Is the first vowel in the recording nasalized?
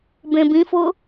yes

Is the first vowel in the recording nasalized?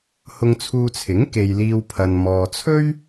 no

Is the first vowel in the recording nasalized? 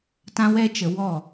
yes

